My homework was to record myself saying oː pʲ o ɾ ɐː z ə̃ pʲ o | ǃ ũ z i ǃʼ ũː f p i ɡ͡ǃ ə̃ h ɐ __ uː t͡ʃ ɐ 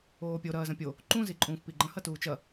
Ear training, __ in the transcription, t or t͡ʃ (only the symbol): t